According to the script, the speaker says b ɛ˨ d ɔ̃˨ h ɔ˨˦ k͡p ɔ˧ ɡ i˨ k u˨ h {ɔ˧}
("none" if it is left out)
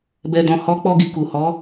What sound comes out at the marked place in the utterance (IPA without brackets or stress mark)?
ɔ˨˦